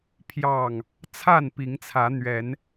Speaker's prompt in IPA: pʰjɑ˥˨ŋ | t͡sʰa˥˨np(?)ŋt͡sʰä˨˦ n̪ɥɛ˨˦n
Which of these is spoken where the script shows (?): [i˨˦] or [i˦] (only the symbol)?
i˨˦